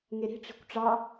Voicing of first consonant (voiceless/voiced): voiced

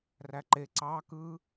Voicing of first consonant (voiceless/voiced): voiced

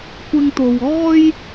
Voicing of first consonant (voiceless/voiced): voiceless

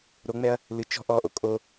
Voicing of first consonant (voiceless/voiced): voiced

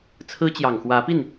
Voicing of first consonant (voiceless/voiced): voiceless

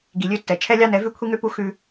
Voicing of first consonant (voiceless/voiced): voiced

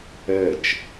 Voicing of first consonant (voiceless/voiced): voiceless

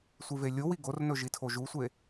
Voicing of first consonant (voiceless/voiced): voiceless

